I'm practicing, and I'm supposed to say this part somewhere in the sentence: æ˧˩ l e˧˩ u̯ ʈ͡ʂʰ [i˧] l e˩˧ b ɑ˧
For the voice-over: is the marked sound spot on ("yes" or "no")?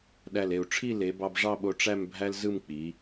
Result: no